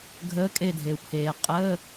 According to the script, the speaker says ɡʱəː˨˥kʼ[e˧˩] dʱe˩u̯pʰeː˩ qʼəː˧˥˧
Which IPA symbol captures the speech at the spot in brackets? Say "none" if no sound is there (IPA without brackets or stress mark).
e˧˩